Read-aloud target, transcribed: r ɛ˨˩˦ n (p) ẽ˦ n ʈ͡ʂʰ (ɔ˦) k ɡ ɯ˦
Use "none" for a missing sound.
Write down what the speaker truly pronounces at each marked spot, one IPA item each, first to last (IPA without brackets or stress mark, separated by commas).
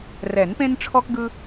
p, ɔ˦